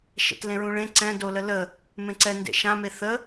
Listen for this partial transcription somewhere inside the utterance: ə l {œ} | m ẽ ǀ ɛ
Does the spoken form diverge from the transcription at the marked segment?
yes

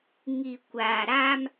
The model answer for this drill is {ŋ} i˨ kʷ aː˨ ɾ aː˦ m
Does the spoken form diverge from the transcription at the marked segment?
no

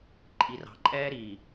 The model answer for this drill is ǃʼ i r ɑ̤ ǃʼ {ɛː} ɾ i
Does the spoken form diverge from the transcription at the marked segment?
no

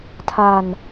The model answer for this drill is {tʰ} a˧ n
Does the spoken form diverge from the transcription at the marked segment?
no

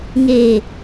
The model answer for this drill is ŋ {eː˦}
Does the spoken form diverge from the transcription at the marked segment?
yes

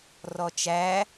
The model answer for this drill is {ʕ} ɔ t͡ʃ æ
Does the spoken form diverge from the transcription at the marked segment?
yes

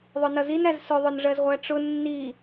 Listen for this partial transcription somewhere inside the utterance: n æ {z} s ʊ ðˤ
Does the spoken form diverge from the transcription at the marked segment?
no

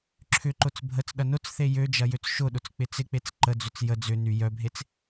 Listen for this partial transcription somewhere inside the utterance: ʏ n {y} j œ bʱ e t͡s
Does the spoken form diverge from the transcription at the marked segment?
no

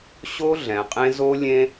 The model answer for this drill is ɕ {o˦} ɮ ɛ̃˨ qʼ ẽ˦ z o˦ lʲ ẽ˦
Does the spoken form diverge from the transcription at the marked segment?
no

